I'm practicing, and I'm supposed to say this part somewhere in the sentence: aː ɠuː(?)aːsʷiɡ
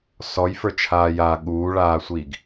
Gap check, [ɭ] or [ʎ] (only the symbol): ɭ